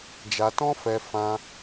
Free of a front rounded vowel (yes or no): yes